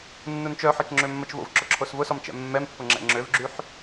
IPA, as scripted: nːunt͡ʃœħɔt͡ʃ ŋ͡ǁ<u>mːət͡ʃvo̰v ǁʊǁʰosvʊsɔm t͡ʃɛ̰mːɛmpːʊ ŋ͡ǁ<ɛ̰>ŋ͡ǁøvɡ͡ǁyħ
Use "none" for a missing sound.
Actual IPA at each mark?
ø, ɛ̰

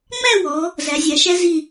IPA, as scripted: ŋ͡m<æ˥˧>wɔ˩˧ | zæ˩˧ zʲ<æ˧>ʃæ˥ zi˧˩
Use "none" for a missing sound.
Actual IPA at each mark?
æ˥˧, æ˩˧

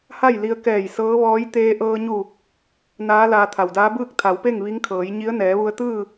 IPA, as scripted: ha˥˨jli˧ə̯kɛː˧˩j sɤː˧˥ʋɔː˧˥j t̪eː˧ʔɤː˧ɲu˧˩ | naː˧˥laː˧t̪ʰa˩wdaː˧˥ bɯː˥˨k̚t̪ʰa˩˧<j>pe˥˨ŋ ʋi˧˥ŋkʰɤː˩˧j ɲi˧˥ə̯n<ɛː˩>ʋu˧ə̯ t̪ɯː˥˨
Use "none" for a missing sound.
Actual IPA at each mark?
w, ɛː˩˧

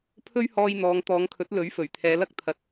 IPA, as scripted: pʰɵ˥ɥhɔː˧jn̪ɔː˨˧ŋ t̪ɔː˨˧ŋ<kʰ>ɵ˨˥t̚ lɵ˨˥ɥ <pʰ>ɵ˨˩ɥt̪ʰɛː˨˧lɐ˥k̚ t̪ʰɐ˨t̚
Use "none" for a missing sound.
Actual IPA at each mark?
kʰ, f

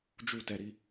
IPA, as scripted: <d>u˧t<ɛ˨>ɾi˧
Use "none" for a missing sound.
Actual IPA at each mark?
d͡ʒ, ɛ˨

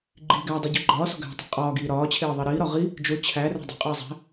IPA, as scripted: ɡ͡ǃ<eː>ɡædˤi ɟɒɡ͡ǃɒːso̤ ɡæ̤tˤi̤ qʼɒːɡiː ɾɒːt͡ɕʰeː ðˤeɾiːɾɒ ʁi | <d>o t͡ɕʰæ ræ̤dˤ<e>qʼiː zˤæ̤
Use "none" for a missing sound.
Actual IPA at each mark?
iː, d͡ʒ, e̤

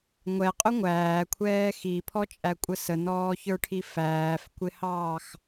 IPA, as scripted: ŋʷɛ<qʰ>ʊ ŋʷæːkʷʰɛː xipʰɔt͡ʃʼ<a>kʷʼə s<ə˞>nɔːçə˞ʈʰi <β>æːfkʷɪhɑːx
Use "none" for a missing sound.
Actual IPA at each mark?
qʼ, æ, ə, f

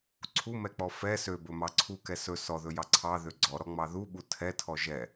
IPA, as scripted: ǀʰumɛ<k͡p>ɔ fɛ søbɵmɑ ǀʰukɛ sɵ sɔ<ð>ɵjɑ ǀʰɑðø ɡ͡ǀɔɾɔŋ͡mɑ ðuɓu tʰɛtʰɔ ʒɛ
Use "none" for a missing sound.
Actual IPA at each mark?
k͡p, ð

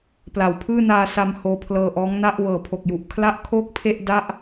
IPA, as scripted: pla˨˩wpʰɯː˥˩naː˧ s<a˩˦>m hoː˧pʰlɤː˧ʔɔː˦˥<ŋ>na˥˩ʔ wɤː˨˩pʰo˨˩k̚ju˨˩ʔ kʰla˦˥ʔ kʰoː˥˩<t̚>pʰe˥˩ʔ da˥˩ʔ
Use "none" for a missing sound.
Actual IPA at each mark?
a˧, ŋ, k̚

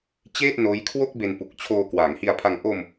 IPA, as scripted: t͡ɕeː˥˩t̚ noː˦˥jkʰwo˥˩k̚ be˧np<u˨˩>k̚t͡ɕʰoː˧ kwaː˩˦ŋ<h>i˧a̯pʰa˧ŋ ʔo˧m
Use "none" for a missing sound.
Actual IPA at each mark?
u˨˩, h

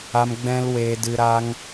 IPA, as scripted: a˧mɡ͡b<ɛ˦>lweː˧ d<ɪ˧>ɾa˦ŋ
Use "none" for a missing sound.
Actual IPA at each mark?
ɛ̃˦, ɨ˧

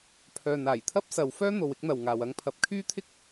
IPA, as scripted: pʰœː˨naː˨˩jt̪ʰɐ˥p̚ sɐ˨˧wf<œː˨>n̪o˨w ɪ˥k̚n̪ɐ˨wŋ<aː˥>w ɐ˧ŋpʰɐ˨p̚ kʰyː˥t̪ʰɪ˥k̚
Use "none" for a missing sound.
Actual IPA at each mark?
œː˥, aː˨

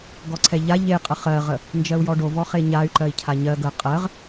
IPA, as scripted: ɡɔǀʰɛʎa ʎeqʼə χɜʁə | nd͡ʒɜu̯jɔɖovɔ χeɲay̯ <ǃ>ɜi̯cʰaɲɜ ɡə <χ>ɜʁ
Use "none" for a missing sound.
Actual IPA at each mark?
ǃ, qʼ

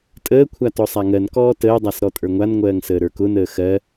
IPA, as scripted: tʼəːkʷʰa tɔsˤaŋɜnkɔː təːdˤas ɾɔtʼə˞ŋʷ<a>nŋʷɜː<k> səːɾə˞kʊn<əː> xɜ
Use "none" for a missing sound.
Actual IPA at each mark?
a, ŋ, əː

